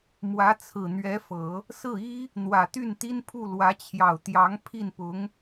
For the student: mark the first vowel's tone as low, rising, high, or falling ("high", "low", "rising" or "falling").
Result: rising